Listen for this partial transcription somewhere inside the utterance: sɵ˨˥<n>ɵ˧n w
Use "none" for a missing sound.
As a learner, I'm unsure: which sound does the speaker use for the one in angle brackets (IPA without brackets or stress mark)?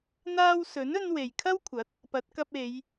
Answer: n